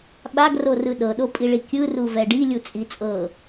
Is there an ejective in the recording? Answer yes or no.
yes